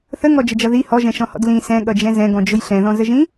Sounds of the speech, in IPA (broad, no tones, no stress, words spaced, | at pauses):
θəŋɔd͡ʒəd͡ʒʌ ði hɔʒɛ̃ʃɔ̃hɔ̰d lĩ sɛ̃ɠʌd͡ʒɛ̃ zɛ̃ɡɔ̃d͡ʒʊj ɬɛ̃ðɔ̃zəʒĩ